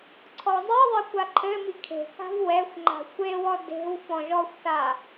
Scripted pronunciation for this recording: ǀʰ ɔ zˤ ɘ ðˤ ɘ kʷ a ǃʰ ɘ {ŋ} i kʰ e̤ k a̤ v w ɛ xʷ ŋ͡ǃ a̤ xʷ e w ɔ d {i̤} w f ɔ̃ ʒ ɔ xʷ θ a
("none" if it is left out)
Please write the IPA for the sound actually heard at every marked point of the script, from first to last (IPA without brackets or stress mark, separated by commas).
m, e̤